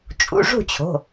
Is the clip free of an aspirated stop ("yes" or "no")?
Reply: no